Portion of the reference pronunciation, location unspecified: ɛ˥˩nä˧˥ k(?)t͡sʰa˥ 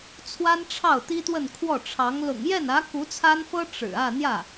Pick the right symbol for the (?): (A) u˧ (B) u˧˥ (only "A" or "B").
B